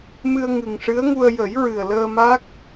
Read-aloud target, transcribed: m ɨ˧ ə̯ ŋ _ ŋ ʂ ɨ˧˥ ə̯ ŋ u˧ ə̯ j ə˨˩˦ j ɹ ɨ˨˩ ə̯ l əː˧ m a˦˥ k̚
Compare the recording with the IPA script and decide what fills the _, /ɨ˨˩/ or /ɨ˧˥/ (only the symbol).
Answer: ɨ˨˩